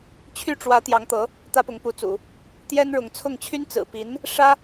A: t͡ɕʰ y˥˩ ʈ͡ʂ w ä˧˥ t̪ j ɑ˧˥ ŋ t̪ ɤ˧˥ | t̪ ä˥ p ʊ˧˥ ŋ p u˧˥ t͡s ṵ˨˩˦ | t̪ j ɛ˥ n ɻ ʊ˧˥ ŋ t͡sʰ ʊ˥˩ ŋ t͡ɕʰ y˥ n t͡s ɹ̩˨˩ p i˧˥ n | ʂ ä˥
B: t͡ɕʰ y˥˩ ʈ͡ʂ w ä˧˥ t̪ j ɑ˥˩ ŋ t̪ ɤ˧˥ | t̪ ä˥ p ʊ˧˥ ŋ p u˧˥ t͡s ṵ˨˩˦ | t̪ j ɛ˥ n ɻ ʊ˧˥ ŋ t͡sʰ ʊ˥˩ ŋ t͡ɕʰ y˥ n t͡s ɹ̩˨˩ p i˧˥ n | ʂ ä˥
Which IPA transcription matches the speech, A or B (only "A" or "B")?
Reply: A